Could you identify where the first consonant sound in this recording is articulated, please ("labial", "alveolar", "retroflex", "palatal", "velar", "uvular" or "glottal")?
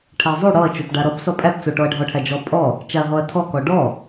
retroflex